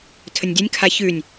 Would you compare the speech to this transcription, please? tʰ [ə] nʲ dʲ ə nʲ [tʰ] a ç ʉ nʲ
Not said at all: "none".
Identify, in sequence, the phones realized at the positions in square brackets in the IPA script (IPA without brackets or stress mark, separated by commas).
ə, kʰ